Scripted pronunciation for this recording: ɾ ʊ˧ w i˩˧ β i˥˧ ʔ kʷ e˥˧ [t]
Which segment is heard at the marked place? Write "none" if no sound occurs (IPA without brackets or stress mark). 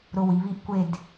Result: d